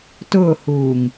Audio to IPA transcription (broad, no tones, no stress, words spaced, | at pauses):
tʊːhuːŋ